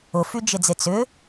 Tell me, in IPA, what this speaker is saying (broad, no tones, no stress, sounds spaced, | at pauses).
ʊ f y d͡ʒ ɪ d͡z ɪ t͡s ʏ